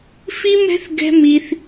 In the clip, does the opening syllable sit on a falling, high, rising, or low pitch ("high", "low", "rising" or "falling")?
high